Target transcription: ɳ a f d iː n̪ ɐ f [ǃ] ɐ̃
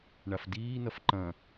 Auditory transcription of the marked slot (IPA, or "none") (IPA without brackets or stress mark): ǃ